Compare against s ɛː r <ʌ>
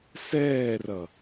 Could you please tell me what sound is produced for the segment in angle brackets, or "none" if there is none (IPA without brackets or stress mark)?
ʌ